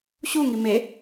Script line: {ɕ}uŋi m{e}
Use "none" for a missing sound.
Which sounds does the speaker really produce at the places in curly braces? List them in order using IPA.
ɕ, e

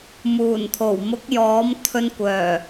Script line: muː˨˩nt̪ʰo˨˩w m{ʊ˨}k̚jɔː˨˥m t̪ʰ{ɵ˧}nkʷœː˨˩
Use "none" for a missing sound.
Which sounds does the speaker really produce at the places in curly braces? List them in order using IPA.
ʊ˨˥, ɵ˧

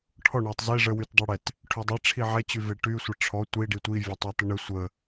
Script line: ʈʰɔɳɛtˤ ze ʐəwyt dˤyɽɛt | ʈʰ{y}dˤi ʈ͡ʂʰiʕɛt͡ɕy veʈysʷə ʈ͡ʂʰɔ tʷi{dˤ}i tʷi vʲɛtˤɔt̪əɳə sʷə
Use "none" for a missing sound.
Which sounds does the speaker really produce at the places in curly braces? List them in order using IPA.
y, ɖ

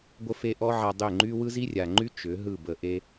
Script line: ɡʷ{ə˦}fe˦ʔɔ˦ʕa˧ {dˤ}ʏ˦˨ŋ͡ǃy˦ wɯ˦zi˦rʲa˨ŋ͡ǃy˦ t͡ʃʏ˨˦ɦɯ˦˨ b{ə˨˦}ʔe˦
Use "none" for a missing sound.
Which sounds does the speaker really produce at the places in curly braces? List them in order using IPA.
ə˦, dˤ, ə˧

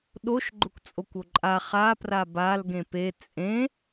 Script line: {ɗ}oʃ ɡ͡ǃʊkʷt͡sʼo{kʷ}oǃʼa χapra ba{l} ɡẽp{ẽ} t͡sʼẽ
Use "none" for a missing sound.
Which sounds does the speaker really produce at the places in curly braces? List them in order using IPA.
ɗ, kʷ, l, e

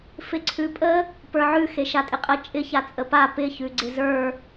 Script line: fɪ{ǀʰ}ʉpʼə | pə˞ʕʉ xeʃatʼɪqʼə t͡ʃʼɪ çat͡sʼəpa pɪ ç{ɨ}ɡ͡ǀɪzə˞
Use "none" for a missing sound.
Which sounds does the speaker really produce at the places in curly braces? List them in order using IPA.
ǀʰ, ʉ

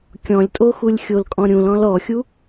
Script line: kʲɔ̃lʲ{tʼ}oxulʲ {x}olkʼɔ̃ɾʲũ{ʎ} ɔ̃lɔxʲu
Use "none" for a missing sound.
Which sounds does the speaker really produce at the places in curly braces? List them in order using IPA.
tʼ, xʲ, l

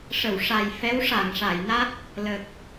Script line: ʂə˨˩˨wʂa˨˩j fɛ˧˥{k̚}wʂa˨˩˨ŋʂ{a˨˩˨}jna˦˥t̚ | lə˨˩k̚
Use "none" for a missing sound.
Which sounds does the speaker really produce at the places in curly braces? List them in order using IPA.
none, a˨˩˨

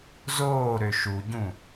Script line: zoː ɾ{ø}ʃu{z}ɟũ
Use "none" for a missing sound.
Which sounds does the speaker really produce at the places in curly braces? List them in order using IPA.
ø, none

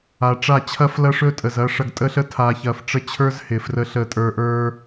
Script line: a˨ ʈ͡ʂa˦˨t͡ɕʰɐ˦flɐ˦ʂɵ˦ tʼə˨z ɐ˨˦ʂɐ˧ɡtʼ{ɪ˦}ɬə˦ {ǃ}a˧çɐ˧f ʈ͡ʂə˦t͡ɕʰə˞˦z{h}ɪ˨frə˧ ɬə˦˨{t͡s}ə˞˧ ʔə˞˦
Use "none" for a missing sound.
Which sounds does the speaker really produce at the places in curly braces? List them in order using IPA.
ə˦, tʰ, h, tʼ

